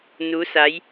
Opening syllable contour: rising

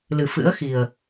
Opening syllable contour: low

